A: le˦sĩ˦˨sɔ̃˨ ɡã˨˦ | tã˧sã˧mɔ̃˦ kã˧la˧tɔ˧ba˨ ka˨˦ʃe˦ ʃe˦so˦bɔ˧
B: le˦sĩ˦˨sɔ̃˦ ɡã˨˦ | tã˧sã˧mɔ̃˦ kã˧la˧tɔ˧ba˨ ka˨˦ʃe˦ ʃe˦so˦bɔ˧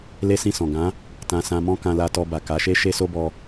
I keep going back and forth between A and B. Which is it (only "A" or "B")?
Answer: A